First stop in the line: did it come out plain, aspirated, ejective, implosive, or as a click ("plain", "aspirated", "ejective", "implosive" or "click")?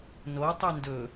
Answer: plain